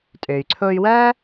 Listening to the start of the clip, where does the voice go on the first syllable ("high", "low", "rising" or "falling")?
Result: low